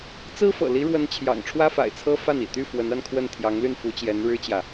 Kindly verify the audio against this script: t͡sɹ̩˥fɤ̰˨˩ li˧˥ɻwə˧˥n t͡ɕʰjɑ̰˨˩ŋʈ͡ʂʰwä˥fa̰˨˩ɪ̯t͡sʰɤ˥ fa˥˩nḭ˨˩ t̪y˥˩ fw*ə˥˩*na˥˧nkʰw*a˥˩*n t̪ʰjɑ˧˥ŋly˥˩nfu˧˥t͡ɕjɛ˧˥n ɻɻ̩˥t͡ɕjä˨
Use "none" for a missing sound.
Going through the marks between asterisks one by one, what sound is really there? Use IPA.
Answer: ə˧˥, ə˥˩

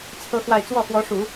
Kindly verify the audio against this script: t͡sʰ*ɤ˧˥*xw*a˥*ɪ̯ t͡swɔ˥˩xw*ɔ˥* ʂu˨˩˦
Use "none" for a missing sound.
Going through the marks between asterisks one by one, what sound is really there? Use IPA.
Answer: ɤ˥, a˥˧, ɔ˧˥

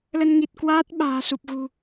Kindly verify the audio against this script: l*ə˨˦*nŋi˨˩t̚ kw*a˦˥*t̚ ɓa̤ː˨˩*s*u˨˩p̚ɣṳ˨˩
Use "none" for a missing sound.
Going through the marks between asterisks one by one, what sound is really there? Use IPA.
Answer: ə˧, aː˦˥, s

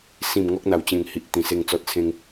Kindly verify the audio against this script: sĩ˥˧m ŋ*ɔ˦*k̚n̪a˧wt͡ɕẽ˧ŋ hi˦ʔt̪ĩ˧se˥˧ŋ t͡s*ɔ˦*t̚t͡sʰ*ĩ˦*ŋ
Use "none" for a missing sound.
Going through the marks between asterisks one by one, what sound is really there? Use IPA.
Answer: ɔ˦, ɔ˦, ẽ˦

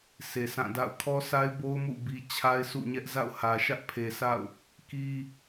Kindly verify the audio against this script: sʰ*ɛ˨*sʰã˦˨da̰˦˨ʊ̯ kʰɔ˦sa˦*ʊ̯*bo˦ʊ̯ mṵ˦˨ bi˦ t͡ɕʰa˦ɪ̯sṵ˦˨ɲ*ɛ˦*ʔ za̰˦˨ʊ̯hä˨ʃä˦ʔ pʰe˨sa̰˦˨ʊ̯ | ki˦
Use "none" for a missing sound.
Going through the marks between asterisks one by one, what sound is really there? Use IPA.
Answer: e˨, ɪ̯, ɛ˦

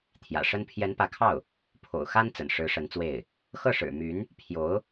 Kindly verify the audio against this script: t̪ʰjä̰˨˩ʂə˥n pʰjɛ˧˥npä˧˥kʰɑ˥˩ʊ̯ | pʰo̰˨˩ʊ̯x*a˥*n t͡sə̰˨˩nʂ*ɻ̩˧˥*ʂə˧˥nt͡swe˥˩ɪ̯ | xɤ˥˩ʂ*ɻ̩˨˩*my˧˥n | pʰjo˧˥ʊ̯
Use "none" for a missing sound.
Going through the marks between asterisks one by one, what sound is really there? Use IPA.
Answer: a˥, ɻ̩˧˥, ɻ̩˨˩

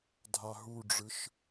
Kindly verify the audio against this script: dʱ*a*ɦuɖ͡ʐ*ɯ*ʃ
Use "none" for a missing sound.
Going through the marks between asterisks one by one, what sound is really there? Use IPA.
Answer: a, ɯ

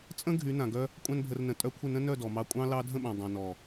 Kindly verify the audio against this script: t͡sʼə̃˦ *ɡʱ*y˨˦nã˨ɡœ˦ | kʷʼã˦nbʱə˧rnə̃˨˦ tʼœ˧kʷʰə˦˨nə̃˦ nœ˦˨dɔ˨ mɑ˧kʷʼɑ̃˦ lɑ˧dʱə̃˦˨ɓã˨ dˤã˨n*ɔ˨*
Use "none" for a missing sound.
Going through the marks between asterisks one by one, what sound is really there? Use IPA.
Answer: ɡʱ, ɔ˨

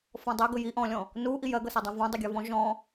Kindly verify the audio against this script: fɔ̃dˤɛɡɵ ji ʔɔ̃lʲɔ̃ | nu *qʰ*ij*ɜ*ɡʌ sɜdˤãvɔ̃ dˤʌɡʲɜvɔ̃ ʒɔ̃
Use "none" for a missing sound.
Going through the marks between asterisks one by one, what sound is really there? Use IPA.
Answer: ʔ, ɜ

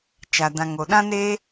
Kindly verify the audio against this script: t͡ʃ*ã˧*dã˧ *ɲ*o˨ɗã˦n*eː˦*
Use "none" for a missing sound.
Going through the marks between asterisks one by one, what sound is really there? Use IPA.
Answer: a˧, ŋ, eː˦

